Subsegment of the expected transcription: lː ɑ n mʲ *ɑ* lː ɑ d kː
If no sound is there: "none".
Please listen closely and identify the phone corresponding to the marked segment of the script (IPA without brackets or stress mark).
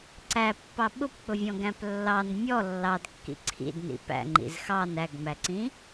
ɔ